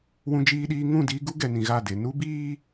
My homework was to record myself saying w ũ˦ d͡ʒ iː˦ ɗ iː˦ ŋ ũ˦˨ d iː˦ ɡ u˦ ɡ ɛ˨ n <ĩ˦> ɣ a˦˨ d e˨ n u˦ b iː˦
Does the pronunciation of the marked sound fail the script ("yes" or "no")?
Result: yes